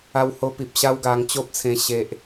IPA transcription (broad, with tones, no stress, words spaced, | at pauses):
a˧who˧pi˨p̚ ɕa˦wɡa˧ŋt͡ɕo˦p̚t͡sʰẽ˧ ɕe˨ʔ